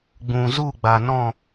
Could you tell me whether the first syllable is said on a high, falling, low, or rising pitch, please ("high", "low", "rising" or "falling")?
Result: low